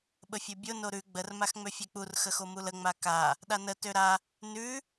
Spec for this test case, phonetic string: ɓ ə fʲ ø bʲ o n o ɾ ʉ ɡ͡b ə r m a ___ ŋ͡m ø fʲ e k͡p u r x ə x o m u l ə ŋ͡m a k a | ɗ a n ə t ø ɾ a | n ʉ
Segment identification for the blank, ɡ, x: x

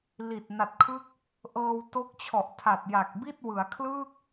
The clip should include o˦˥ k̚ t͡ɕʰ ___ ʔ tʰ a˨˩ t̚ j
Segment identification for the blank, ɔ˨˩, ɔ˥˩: ɔ˨˩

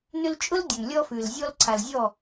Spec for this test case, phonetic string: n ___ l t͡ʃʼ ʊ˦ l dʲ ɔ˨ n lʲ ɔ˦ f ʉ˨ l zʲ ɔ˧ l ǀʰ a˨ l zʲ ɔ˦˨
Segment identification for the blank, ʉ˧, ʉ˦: ʉ˧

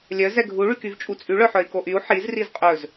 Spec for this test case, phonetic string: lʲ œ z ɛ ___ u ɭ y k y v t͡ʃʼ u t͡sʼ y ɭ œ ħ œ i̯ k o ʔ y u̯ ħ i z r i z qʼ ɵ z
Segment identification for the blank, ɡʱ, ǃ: ɡʱ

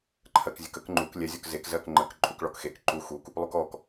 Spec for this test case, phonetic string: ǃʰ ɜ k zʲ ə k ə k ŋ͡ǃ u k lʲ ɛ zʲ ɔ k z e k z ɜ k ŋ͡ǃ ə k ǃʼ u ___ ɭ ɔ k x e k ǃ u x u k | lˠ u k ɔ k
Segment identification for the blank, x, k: k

